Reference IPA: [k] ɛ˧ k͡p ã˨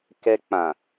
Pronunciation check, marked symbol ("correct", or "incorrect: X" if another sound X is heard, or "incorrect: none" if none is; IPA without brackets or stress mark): correct